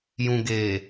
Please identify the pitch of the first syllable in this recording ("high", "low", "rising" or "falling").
low